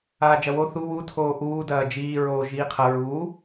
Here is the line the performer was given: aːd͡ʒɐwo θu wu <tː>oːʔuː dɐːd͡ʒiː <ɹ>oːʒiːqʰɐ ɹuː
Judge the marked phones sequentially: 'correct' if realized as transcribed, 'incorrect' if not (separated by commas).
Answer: incorrect, correct